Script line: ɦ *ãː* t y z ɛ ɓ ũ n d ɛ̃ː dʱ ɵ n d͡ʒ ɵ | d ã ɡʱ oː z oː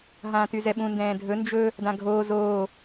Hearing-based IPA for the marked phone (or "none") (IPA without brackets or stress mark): ãː